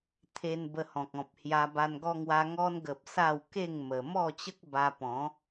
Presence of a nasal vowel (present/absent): present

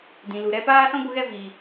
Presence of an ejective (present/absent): absent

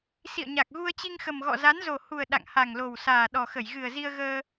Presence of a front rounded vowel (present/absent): absent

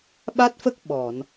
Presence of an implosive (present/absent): present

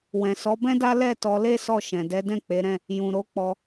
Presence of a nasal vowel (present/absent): present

